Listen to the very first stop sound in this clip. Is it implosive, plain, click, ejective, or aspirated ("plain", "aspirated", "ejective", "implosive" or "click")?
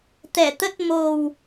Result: plain